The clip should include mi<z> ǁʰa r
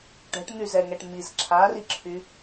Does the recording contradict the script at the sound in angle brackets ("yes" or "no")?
no